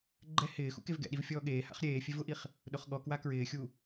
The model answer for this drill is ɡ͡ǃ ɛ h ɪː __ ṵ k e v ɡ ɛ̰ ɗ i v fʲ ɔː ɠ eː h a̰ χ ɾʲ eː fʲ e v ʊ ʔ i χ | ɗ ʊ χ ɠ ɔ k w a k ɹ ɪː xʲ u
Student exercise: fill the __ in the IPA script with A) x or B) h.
A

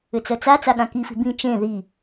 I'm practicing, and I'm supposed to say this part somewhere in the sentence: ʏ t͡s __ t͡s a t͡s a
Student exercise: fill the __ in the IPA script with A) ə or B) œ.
B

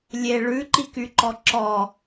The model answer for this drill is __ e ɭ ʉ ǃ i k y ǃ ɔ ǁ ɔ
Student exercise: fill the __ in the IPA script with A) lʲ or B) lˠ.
A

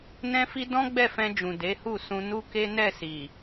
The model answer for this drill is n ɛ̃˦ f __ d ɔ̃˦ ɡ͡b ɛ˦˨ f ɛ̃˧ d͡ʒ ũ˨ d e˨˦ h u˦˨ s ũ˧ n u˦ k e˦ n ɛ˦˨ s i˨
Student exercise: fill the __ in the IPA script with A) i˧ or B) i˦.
B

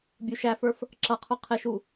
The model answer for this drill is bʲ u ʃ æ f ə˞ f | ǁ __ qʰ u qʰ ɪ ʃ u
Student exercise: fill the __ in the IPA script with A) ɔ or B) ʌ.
B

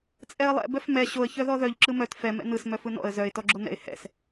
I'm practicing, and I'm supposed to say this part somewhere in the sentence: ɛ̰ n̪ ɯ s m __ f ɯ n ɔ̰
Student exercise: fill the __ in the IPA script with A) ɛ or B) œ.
B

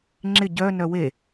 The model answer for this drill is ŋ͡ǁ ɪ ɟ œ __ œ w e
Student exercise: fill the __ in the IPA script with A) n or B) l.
A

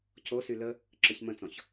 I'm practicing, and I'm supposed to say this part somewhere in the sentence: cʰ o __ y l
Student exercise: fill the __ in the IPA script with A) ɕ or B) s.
B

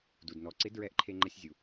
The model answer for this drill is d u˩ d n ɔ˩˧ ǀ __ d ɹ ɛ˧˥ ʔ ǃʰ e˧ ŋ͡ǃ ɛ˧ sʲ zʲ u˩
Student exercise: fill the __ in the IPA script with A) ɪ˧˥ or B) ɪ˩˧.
A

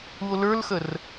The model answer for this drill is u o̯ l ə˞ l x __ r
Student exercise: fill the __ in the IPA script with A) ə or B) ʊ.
A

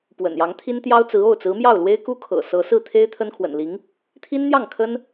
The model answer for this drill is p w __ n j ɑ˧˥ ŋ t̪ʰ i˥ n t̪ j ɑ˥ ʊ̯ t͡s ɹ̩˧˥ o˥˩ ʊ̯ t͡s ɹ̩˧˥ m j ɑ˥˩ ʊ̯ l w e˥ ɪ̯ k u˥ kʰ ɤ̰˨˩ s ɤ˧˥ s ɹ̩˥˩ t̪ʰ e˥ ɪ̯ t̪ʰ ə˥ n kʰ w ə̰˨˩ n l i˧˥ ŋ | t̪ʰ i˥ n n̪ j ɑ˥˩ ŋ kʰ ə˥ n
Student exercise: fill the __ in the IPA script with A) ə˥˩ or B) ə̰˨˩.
B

